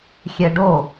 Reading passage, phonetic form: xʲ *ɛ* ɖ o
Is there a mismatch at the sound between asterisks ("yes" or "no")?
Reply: no